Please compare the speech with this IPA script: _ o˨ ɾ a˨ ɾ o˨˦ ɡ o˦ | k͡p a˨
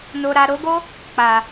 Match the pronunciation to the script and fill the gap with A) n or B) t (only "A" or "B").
A